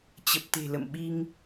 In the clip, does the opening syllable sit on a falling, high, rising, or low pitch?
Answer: low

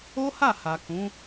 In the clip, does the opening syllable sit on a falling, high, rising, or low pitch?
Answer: high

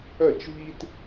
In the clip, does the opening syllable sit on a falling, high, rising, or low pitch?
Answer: falling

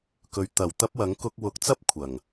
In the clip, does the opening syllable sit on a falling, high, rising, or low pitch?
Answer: low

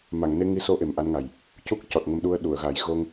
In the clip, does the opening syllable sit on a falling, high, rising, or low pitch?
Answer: low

